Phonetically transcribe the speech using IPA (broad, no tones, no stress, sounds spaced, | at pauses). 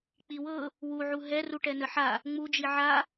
k͡p i w ɤ | w u ʕ u ɦ ɛ r u ʈ ɛ n ə ħ a | ŋ͡m u d͡ʒ i ʕ a